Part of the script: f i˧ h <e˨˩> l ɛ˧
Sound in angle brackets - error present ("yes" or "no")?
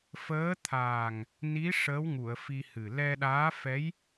yes